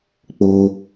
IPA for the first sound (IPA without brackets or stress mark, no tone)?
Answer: k͡p